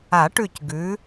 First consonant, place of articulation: retroflex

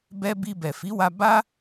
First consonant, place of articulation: labial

